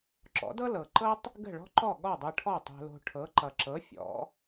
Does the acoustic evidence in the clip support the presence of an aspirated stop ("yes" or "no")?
yes